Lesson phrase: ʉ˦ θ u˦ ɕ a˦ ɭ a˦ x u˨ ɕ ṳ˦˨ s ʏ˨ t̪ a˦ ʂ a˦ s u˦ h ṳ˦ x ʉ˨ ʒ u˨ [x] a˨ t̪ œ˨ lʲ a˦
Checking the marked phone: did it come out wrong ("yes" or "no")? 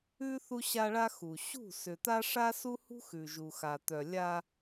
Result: no